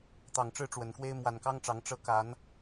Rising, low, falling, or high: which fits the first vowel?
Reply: low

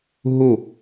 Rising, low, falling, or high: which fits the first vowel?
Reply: falling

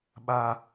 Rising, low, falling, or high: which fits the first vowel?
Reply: high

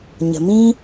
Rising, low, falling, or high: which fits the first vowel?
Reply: low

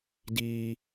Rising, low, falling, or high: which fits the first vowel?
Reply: high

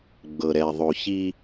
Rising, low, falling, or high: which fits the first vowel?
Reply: low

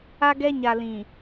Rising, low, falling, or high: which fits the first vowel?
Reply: high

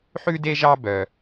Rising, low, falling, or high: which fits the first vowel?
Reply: high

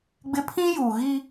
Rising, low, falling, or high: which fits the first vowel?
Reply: high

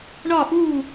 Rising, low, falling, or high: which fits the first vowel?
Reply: falling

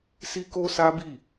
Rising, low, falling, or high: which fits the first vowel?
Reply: high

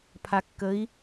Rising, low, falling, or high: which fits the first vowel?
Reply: low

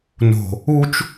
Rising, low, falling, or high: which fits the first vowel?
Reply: low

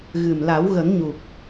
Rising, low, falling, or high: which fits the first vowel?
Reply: low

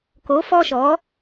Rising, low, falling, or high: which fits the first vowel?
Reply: rising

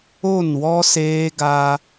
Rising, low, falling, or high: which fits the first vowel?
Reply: falling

